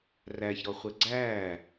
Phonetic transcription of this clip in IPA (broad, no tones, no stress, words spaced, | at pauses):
ræçɾɔχʷɛ ɡ͡ǀæ